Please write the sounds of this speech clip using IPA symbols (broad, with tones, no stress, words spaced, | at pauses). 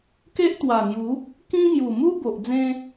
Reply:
ke˦ʔt̪wa˨˩ŋju˨˦ | kĩ˦ŋju˨˩ mu˦ bo˨ʔ d͡zẽ˧